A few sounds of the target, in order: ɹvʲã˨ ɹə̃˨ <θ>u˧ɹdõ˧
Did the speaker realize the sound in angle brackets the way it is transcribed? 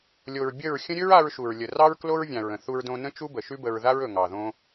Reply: yes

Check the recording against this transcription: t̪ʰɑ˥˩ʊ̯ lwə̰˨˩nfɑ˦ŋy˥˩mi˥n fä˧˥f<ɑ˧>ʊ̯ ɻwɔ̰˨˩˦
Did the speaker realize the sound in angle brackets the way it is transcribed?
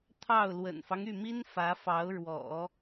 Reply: no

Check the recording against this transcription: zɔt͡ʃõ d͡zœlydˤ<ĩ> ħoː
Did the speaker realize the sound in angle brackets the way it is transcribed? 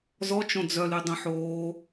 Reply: no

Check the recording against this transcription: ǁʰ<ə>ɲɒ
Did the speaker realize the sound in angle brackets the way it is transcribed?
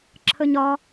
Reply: yes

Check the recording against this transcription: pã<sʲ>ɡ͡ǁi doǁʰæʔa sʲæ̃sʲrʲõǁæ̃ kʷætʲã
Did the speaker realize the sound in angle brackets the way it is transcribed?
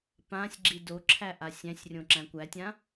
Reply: yes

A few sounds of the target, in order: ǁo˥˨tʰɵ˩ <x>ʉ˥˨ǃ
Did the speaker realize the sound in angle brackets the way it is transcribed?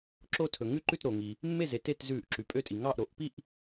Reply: no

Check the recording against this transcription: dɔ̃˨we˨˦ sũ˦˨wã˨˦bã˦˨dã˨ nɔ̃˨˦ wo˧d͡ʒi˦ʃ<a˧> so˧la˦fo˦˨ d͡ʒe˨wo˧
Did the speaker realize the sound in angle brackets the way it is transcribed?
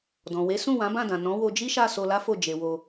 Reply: no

